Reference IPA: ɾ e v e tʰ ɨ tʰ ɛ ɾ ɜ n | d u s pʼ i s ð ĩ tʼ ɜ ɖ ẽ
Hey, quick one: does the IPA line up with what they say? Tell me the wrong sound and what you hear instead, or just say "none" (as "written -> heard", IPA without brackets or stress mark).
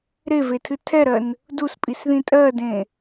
ɖ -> d